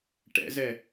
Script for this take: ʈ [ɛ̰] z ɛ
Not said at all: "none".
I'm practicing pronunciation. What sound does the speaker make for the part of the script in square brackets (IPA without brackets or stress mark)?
ɛ̰